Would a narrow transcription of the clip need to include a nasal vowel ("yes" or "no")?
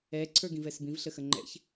yes